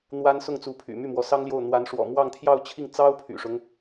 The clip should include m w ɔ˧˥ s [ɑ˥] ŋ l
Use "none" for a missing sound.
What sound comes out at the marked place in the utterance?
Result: ɑ˥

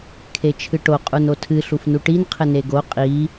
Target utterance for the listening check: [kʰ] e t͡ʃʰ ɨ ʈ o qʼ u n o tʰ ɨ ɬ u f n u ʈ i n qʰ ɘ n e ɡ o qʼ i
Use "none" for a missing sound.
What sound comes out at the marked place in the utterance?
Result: kʰ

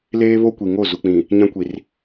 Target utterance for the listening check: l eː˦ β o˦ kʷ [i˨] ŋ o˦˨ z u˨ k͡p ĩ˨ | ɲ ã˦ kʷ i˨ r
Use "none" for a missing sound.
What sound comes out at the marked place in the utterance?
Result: i˨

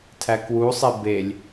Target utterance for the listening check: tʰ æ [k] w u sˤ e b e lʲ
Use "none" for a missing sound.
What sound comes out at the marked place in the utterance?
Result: k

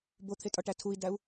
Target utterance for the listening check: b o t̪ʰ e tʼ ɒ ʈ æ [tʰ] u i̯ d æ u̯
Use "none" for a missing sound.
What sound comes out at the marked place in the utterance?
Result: tʰ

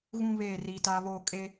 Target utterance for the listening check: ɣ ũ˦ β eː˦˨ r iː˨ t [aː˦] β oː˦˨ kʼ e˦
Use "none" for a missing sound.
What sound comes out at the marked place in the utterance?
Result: aː˦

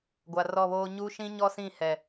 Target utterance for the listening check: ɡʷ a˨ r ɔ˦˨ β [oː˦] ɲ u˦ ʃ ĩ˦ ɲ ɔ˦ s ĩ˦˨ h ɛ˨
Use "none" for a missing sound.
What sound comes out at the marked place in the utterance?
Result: oː˦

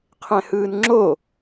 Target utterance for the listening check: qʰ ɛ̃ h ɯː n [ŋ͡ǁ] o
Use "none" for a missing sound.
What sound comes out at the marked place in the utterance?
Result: ŋ͡ǁ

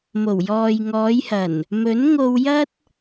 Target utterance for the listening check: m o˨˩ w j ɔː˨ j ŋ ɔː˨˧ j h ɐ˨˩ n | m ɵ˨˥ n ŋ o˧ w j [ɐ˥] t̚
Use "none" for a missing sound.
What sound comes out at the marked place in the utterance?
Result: ɐ˥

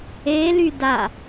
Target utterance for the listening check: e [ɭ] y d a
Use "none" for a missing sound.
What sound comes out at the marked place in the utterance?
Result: l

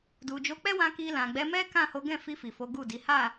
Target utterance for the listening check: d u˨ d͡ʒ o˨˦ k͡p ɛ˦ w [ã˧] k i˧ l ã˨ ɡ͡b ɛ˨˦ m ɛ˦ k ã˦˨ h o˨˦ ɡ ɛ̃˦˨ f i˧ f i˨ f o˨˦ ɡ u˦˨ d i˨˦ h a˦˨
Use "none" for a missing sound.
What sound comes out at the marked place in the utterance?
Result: ã˧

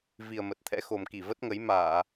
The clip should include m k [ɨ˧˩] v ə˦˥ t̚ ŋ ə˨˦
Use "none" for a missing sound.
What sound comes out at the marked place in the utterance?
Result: i˧˩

